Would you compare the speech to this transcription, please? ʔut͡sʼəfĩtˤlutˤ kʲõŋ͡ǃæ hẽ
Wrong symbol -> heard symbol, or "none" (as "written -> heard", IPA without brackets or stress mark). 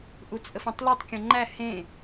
ĩ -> ẽ